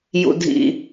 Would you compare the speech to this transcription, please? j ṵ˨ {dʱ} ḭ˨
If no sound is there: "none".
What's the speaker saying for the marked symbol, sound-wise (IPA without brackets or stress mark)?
dʱ